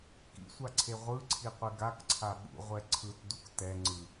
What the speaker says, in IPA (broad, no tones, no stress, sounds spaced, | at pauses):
k ḭ sʷ a ǀʰ e ʁʷ ɯ ǀʰ i qʷ e ɡ a k ǀʰ a ɓ ṵ ʁʷ ɛ ǀʰ ɯ t d u k t ɛ ŋ͡ǀ ɯ